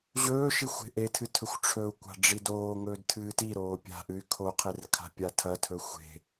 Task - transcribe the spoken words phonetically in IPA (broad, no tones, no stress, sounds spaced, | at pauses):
ʑ ɵː ʃ i xʷ e̤ ʔ e tʰ ɨ tʰ ɵ xʷ ʈ͡ʂʰ ɵ u̯ kʷ a̤ ɖ͡ʐ i d oː ŋ ɵː d tʰ ɨː t i ɾ oː pʲ a̤ ʔ ɨ y̯ kʰ o qʰ e r kʰ a̤ pʲ a tʰ ɐ tʰ ɵ xʷ e̤